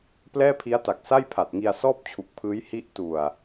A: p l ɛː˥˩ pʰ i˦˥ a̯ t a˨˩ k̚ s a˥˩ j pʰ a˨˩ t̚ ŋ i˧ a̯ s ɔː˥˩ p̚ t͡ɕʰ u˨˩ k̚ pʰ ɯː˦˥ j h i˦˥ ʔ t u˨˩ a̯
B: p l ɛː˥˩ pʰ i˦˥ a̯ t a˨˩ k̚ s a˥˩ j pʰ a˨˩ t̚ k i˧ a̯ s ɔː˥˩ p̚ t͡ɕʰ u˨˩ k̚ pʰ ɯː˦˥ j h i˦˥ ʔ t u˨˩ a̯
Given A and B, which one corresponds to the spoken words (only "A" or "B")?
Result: A